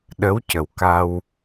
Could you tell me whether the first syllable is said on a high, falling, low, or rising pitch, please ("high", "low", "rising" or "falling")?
rising